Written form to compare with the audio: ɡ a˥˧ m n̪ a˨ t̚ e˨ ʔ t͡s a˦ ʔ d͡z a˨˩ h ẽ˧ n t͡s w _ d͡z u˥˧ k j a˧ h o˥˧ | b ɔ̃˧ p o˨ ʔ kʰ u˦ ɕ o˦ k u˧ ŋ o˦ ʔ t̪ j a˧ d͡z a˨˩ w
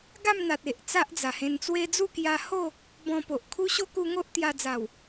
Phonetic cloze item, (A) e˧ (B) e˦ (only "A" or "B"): B